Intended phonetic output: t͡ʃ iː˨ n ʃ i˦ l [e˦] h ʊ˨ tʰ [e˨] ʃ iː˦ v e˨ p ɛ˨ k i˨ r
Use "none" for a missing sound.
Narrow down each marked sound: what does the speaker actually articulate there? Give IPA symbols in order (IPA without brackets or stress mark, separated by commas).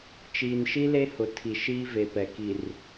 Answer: e˦, i˨